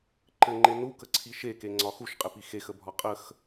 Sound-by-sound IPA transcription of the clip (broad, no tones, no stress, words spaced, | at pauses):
ǃɘŋ͡ǃe nukəǀʰi ʃekeŋ͡ǀɒ xuʃqʼɘpi xexəbʱɒ qʼəx